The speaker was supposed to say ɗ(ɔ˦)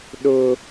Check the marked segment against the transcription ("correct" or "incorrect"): incorrect